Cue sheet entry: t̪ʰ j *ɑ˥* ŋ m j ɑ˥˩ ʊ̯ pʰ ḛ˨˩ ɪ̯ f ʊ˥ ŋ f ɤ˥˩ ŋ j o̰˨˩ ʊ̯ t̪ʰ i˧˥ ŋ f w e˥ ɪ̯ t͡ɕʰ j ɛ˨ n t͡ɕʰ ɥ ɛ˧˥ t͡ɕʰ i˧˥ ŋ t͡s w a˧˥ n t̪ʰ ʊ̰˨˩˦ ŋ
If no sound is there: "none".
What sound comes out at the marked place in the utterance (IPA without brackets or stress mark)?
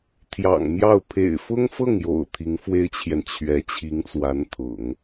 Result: ɑ̰˨˩